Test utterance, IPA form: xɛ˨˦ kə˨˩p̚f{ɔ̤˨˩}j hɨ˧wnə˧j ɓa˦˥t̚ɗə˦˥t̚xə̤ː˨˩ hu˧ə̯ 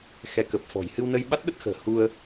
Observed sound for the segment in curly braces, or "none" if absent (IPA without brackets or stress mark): ɔ̤˨˩